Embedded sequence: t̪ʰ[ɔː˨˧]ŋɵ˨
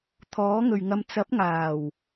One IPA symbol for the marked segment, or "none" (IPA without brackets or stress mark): ɔː˨˥